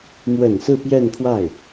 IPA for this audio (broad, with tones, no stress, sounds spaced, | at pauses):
m w ə˨˩ n s ɹ̩˥˧ p j ɛ˥˧ n pʰ w a˥˩ ɪ̯